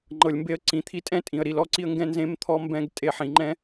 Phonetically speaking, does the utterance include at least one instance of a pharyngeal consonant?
yes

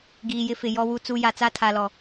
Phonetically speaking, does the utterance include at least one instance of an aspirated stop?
yes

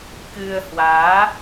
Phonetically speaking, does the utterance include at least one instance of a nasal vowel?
no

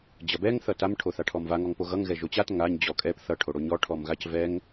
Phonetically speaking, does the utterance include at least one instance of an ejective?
yes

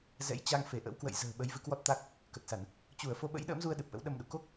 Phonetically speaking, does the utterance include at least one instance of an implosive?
yes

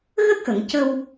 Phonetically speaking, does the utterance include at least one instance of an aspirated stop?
no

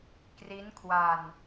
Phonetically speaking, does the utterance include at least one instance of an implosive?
no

